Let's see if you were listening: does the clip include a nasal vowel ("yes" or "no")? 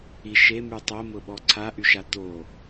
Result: no